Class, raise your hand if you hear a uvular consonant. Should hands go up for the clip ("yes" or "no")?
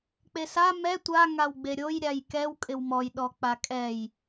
no